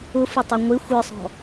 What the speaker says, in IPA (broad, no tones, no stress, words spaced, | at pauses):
ʊfʊtˤɪ ŋʷɪ xʷə˞sˤɔ̤